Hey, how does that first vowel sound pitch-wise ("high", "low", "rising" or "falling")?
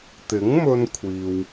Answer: rising